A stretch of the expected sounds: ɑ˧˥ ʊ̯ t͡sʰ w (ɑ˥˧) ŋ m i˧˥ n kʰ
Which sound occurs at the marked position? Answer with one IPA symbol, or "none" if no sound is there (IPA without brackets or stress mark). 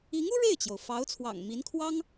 ɑ̰˨˩